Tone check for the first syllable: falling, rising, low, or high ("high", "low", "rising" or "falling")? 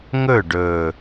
falling